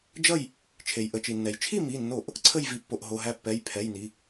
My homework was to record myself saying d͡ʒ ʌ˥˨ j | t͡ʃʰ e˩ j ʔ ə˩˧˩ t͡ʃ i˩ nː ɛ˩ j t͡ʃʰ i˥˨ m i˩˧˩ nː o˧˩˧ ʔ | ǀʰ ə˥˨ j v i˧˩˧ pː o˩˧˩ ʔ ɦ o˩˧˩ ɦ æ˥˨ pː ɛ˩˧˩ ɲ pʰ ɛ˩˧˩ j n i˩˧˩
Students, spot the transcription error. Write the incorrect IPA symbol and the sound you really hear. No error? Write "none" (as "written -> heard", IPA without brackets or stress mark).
ɲ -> j